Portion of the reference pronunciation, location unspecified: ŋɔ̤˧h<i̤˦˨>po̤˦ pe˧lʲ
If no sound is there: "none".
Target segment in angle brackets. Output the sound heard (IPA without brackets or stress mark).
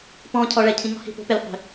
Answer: i̤˦˨